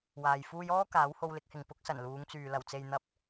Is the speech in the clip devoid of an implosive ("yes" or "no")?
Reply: yes